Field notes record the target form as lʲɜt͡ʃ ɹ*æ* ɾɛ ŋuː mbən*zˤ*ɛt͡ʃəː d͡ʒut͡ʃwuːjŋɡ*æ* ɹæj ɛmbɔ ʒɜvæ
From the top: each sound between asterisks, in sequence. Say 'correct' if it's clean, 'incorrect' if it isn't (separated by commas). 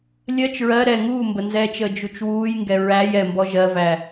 incorrect, incorrect, incorrect